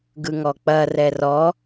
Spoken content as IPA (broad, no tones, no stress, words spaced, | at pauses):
ɡɯŋɔk͡pɐ rɛrɔ